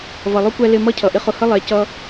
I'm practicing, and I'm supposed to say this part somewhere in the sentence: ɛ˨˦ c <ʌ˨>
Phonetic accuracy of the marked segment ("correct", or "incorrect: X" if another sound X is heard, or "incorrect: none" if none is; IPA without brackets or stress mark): incorrect: ʌ˦